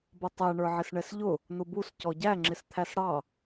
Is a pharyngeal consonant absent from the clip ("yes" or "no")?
no